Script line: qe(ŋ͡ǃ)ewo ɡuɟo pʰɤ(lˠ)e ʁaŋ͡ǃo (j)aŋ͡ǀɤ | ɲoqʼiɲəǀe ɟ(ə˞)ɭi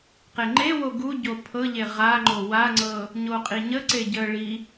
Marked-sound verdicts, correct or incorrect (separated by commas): correct, incorrect, incorrect, incorrect